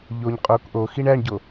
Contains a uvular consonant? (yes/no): yes